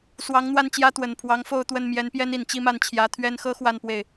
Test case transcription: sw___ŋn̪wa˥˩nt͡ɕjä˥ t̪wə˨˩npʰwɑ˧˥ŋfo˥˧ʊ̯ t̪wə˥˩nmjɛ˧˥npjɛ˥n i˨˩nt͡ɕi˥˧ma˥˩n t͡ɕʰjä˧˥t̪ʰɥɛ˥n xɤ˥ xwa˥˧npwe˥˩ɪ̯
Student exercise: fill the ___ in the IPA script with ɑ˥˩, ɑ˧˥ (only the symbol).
ɑ˧˥